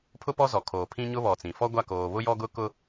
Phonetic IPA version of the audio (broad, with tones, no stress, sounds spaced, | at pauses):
pʰ ʊ˦ p ɔ˦ z ɔ˨ kʰ oː˨ pʰ ĩ˦ ɲ ʊ˦ β ɔ˨ t͡s ĩ˨ f ɔ˦ ɡʷ a˦˨ k oː˨ β ʊ˦ j ɔ˦ ɡ ʊ˦ k ʊ˦